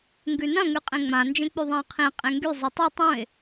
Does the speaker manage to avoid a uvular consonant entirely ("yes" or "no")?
no